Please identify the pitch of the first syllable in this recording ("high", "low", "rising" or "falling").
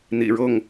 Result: low